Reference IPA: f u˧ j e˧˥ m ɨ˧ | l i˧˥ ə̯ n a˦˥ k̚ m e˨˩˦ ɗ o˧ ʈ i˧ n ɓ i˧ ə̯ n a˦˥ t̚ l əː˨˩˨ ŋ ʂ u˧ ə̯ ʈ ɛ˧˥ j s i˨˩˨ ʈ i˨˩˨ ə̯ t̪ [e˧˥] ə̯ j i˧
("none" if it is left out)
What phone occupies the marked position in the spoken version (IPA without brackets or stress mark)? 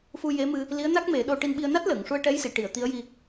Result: i˧˥